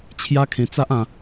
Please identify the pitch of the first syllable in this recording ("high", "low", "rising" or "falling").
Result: high